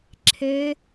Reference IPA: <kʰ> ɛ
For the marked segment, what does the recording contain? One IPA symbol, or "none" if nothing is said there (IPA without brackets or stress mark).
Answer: ǁʰ